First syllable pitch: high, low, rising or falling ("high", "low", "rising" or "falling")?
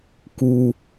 low